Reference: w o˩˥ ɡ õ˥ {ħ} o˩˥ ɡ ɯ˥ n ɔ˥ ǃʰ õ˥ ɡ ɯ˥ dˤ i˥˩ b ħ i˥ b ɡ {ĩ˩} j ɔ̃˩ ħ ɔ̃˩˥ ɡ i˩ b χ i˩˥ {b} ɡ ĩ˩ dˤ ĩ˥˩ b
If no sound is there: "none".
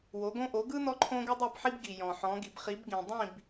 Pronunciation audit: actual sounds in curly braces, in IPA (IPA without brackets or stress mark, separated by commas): ʔ, i˩, b